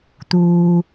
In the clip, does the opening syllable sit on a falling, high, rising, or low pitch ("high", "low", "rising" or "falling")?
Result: high